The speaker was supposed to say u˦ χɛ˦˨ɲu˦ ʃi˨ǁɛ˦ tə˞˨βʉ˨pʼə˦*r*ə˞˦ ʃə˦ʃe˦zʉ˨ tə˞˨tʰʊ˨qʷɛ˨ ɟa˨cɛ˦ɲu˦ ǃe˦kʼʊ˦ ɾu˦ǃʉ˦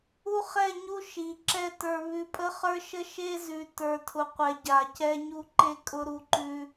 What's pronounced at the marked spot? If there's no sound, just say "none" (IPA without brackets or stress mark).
χ